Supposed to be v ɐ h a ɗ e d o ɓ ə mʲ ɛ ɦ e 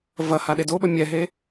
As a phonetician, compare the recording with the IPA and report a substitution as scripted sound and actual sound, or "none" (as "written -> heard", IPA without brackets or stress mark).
none